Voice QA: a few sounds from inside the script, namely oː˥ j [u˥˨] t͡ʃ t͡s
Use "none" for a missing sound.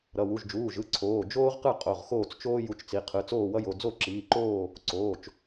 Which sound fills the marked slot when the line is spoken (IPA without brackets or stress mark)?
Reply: u˥˨